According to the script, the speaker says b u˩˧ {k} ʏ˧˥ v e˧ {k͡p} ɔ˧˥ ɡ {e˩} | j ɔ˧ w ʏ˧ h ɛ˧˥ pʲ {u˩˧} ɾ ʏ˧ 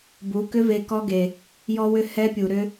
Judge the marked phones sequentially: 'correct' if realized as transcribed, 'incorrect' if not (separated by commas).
correct, incorrect, correct, incorrect